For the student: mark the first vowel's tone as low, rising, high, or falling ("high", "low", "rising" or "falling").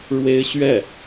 high